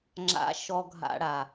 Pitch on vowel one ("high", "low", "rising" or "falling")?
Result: low